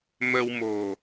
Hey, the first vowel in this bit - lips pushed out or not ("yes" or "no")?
no